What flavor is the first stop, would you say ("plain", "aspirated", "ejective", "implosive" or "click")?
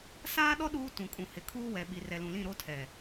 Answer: implosive